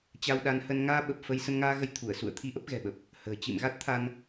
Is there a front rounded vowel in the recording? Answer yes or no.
no